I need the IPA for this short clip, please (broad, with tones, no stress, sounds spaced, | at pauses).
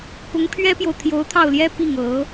k ʊ˧˥ ŋ pʰ ɥ ɛ˥ p j o˨ ʊ̯ t̪ʰ j o˧˥ ʊ̯ t̪ʰ ɑ˥˩ ʊ̯ l j ɛ˥ p i˥˩ ŋ ɤ˧˥